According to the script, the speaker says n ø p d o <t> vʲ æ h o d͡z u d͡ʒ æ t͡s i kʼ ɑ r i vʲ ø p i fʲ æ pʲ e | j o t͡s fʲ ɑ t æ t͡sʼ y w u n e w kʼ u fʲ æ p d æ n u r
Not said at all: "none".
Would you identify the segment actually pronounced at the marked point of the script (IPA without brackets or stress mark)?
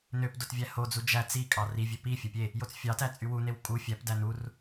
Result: t